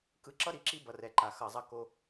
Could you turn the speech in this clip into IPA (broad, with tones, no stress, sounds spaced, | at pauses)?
k ɯ˨ ǁ ʌ˦ ɾ i˨ ǁ i˦ b ʌ˨ r ɛ˨ ǃ a˨ x ʌ˨ zˤ ʌ˦ k o˦